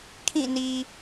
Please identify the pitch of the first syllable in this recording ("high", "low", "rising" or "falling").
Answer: falling